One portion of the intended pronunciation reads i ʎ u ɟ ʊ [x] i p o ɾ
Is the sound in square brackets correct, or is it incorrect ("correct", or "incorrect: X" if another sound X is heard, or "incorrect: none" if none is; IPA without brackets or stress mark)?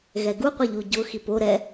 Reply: correct